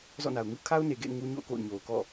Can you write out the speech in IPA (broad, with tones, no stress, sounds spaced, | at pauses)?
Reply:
z ɔ̰˦˨ n a˨ ʊ̯ ŋ u˦ kʰ a˦ ʊ̯ n e˨ ɡ ḛ˦˨ ɪ̯ ŋ u˦ ɲ o̰˦˨ ʊ̯ k o̰˦˨ ʊ̯ ɲ o˨ ʊ̯ k ɔ̰˦˨